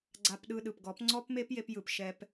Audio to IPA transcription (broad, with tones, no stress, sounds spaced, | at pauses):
ɡ͡ǀ a˧ p ɗ ɯ˧ ɗ ɯ˨ p ɡ ɔ˨˦ p ŋ͡ǀ ɔ˦ p m e˦ p j e˧ p j ɯ˨ p ʃ ɛ˧ p